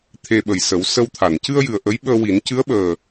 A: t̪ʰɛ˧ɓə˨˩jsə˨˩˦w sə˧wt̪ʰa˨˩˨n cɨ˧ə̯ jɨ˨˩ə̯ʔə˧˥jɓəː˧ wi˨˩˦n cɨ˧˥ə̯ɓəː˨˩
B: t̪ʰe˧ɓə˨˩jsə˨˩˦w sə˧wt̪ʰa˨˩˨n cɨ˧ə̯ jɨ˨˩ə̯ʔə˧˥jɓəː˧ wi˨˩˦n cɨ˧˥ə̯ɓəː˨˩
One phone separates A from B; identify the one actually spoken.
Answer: B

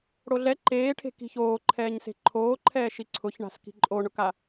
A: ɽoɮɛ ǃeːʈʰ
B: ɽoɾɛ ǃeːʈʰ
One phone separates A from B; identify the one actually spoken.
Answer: A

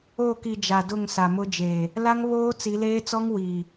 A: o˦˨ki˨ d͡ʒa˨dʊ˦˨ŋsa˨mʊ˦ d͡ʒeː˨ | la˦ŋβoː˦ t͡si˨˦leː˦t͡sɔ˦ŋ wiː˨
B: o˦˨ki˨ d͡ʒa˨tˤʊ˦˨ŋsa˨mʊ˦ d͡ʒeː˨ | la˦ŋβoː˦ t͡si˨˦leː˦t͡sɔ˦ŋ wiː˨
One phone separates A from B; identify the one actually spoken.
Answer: A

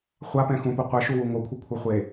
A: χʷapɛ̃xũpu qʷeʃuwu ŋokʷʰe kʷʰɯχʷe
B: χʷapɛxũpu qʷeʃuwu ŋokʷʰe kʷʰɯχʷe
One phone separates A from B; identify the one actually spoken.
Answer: A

